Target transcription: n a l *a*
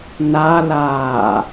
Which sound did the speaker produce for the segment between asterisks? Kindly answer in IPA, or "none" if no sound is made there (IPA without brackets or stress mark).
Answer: aː